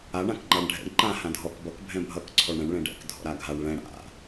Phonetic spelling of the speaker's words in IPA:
a ɳ ã k ŋ͡ǃ a ɳ ɖʱ ɛ̰ ɳ ǃ ã h ã dʱ ɔ k b ʌ k bʱ ɛ̃ bʱ ʌ k ǀʰ ɔ ɳ ɽ ɛ̃ ɳ ɭ ɛ̃ ɖ ɛ̰ k dʱ ɔ̰ ɾ a ɡʱ a ɳ ɭ ɛ̃ ɽ a̰

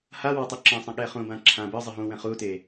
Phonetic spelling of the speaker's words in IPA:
h a w a tˤ u ǁ ɛ̃ sˤ ɛ̃ ɠ ɛ χ ũ b ã ǁʰ ã b ɯ zˤ ɨ ɦ ũ w ɛ̃ χ u t e

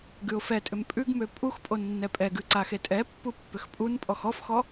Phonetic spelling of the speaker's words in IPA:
ɡ ʉ ʊ̯ f ɛ tʼ ʏ m pʼ ʉ ɡ m ø pʼ u x pʼ o nː ɛ pʼ ɛ ɡ ʉ ǀ a x e tʼ ɛ pː u pː ʏ x pʼ u n pʼ ɔ x ɔ f x ɔ

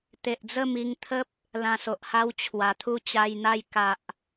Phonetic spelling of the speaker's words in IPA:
t̪ e˨ ʔ d͡z ə˥˧ m i˧ ŋ t̪ʰ ə˦ p̚ | l ã˧ s o˨ ʔ h a˦ w t͡ɕʰ w a˨˩ t̪ʰ u˥˧ t͡ɕ a˧ j n̪ a˥˧ j k a˨ ʔ

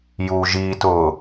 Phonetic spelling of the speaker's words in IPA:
j uː ʒ iː t ʊː

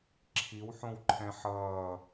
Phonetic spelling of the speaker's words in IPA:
ǁʰ i w ħ õ w ǃʰ ɛ̃ ħ ʌː

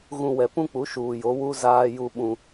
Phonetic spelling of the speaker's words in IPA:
ɣ ũ˨ w ɛ˨ p ũ˦ k͡p u˨˦ ʃ uː˨ j o˨˦ w u˦ z aː˦ j u˦ ɓ ũ˦

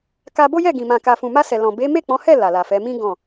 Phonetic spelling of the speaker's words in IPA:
k a˧ b o˦ j ɛ˦˨ ɡ ĩ˨ m ã˨ k a˨ f ũ˨ m a˧ s ɛ˨ l ɔ̃˨ b e˨˦ m e˦˨ k͡p ɔ̃˨˦ h ɛ˦˨ l a˨ l a˨ f ɛ˨˦ m ĩ˦ ɡ ɔ̃˦˨

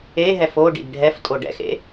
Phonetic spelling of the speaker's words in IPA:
e ɦ ɛ f o ɖ ḭ d ɖʱ ɛ f tʼ o ɖ ɛ̰ x ḛ

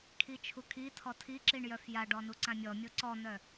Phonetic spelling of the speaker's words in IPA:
kʰ i t͡ʃʰ u kʰ i tʰ ɔ tʰ i ǁ i ɳ j œ f j a ɖ ɔ n u ǀ ã mʲ ɔ mʲ o ǀ ɔ n̪ œ

